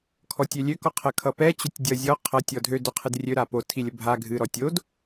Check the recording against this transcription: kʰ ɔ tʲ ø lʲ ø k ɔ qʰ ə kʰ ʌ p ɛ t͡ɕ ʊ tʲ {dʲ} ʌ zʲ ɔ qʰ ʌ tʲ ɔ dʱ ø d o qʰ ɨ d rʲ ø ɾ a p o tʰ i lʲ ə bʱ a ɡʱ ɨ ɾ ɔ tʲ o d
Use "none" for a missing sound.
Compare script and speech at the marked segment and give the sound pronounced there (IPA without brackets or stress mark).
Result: dʲ